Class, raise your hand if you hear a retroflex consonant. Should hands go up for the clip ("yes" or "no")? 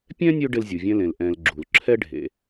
yes